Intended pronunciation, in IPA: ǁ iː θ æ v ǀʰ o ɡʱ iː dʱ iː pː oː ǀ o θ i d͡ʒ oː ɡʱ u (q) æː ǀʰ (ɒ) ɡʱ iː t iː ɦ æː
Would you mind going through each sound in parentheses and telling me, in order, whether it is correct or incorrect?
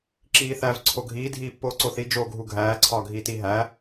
incorrect, incorrect

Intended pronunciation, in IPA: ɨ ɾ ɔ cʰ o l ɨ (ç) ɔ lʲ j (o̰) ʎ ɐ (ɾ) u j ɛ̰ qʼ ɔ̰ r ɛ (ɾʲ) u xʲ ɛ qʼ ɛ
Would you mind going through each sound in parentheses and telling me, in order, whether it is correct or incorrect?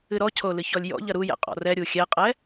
correct, incorrect, correct, correct

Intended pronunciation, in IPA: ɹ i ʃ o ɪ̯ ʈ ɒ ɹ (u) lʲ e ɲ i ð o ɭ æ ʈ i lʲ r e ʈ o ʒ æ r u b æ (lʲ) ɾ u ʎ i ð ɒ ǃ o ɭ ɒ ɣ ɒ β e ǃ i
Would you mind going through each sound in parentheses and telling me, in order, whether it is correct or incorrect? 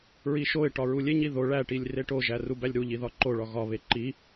correct, correct

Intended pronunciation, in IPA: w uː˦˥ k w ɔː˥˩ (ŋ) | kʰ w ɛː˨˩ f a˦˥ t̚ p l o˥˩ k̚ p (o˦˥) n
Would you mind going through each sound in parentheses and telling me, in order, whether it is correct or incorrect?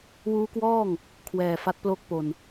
correct, incorrect

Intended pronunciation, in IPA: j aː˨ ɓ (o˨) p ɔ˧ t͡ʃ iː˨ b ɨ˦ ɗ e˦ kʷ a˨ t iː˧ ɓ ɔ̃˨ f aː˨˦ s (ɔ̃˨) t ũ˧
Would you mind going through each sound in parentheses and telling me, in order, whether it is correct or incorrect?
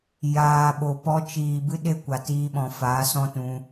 correct, incorrect

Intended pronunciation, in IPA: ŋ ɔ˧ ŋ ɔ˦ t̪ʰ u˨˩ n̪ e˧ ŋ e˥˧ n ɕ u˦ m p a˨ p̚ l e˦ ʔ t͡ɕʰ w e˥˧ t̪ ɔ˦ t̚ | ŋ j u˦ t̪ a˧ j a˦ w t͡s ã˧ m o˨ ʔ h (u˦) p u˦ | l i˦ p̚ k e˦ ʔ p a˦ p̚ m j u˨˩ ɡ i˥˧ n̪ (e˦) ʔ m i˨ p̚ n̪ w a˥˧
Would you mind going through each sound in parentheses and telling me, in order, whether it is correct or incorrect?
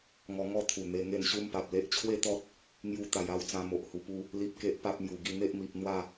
incorrect, correct

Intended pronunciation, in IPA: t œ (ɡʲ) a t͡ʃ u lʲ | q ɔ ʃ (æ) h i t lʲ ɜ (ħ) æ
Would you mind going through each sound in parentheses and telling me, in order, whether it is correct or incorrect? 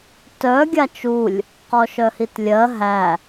correct, incorrect, incorrect

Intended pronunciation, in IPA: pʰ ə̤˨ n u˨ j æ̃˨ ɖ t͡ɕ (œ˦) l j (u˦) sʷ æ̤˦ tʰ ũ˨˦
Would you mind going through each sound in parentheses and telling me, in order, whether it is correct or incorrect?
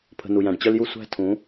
correct, correct

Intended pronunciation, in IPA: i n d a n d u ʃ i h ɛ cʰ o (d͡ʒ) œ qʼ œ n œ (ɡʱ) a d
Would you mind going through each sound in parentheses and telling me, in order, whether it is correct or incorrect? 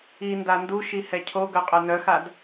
incorrect, incorrect

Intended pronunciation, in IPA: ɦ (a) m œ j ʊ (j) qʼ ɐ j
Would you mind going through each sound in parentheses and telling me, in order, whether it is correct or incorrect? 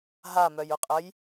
correct, incorrect

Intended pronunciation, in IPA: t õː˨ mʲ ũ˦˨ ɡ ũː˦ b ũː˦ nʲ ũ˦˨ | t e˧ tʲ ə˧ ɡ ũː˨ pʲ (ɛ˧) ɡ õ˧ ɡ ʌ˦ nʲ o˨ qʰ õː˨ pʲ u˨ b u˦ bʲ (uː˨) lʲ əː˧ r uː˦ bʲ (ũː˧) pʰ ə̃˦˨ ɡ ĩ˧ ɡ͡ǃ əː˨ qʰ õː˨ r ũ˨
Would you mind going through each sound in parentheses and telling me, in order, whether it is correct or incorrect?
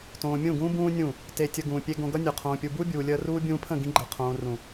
incorrect, correct, correct

